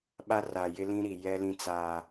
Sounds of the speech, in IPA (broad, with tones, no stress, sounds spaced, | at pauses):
ɓ a˦ r a˨ j ɪ˦ l ĩ˦ ɾ i˨ j ɛ˦ l ĩ˦ t͡s aː˦